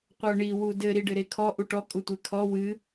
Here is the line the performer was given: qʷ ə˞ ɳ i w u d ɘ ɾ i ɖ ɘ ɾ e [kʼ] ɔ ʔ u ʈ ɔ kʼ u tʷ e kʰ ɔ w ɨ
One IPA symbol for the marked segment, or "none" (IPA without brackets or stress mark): kʰ